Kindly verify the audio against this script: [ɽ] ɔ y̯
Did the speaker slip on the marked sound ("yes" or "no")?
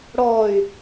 no